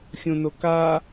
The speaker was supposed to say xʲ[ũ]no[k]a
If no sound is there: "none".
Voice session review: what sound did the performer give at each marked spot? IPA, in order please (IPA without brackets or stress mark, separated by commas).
ũ, k